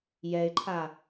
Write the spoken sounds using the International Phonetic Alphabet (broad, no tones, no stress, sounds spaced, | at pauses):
j ɛ ɪ̯ ǃʰ a